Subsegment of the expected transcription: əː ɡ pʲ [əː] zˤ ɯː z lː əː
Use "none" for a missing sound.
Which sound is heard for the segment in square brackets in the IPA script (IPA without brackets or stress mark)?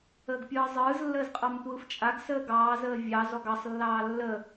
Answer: ɯː